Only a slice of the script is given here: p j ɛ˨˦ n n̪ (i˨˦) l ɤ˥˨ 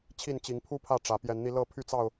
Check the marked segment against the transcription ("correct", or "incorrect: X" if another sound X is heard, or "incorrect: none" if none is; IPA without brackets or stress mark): incorrect: i˧